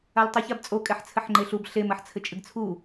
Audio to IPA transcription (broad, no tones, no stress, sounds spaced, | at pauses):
a l tˤ ɨ ç a b t͡sʼ o kʼ ɛ ħ t͡sʰ ɘ ħ ŋ͡ǃ e ɬ u b ɬ e m ɐ ħ t͡sʰ ɘ t͡ʃʼ ɨ ɡ t͡sʰ u